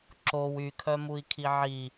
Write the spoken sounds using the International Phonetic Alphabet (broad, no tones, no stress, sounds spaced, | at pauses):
ǁ o w y kʰ œ m u i̯ kʰ i ʕ i